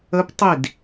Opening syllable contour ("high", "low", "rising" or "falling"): rising